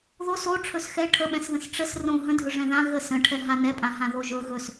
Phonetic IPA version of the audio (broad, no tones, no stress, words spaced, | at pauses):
ðos o ʈ͡ʂʰɵsxɛ ʈʰəɓɛ̃sðə̃s ʈ͡ʂəs rõ ɦə̃dʱɵ ʐɛ̃ðã ɣə sə̃ʈʰɛ ɦanɛpʼã ɦãðoʒɵ ɣɵs